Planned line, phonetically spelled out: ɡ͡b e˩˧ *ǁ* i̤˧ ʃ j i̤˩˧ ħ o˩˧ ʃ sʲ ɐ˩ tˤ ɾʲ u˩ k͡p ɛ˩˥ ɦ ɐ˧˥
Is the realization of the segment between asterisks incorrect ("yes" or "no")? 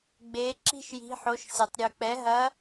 no